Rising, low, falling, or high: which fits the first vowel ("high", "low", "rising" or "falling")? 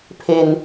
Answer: low